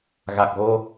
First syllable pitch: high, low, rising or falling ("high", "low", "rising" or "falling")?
low